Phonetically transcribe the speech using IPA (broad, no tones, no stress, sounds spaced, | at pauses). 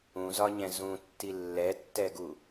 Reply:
ũ z ɒ ɲ ɛ̃ z ũ tː i lː ɛ tː ɛ ɡ u